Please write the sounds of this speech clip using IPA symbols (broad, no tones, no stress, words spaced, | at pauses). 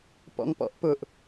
pɔ̰ŋpɔ̰ʔpʊʔ